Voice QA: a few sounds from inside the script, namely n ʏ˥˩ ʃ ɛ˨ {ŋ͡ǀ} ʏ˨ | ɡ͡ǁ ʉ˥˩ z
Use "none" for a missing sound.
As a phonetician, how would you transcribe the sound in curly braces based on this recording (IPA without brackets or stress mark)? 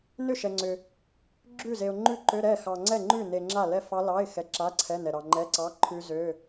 ŋ͡ǀ